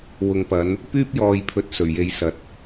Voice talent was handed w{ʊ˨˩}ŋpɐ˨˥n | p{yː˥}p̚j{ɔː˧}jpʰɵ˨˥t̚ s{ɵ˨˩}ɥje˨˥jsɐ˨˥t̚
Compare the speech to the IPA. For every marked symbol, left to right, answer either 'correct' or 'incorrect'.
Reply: incorrect, correct, incorrect, correct

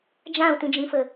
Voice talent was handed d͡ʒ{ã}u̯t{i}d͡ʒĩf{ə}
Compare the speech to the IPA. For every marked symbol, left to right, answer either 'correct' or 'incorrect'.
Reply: correct, incorrect, correct

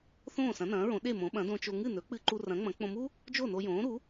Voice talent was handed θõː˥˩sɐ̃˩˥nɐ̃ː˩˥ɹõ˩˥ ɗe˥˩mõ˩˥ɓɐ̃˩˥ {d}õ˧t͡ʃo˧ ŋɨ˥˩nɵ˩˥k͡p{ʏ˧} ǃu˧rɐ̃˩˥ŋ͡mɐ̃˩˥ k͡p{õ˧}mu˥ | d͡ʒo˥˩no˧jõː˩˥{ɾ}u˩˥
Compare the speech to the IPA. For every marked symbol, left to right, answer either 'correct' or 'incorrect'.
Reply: correct, incorrect, correct, correct

